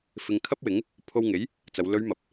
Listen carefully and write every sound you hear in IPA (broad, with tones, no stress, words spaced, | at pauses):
fɪ˨ŋ kʰɐ˥p̚wɪ˨˥ŋ | pʰo˧wŋe˨˥j | t͡sɐ˨˧w lɵ˨˧ɥ mɐ˨p̚